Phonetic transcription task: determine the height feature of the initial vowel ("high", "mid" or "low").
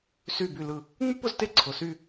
high